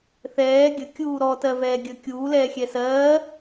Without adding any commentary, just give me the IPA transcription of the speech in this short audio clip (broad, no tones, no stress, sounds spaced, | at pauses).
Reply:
θ ɛː ɡʲ ə kʲ uː ɾ ɔ t ɜ v ɛː ɡʲ əː kʲ uː l ɛː xʲ ɛ s ɜː